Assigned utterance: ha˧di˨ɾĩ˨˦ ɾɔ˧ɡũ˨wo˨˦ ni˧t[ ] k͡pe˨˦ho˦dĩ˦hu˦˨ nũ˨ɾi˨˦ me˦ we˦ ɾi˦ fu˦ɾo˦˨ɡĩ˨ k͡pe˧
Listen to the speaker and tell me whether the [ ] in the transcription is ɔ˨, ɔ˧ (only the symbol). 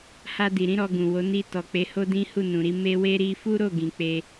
ɔ˨